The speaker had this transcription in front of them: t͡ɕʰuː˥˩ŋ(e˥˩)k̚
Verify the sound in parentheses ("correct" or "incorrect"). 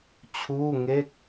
correct